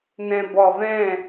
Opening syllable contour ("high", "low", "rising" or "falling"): low